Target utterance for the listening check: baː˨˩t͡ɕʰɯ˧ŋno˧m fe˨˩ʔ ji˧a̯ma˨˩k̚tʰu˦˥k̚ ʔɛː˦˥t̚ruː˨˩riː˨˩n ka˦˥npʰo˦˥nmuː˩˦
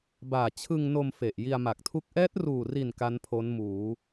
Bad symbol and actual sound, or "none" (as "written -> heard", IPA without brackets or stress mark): iː˨˩ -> i˨˩